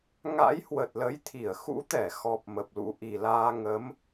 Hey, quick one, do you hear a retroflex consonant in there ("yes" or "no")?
no